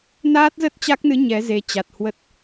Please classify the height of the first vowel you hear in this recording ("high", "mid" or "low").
low